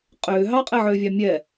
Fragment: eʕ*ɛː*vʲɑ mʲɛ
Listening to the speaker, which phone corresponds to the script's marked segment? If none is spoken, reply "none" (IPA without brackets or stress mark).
ʏː